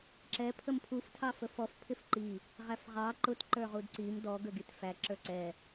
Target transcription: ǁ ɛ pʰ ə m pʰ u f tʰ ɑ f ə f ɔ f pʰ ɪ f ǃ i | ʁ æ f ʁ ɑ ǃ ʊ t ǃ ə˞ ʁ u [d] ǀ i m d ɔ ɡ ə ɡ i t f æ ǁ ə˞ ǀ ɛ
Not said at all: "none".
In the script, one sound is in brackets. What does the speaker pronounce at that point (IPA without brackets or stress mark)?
d